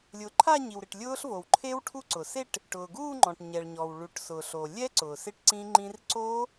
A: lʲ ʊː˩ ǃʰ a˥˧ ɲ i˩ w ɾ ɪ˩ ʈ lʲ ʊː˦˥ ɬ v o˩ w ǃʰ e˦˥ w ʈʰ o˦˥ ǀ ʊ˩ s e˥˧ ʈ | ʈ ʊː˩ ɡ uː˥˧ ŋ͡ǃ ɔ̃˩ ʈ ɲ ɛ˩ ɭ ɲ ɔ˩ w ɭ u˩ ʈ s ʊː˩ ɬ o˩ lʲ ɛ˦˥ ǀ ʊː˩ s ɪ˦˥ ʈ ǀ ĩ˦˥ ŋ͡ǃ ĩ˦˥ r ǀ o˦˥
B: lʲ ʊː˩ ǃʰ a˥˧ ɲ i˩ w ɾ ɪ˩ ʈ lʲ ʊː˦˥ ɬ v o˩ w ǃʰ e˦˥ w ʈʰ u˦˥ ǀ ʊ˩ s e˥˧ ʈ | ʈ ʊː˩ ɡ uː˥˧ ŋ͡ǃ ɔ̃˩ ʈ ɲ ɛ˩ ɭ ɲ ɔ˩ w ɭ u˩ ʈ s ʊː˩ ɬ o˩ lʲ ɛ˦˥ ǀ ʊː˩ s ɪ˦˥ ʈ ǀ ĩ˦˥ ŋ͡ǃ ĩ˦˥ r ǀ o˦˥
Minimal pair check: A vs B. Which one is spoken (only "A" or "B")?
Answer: B